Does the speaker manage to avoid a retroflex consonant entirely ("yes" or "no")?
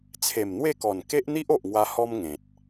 yes